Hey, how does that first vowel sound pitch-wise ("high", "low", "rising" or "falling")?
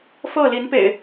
falling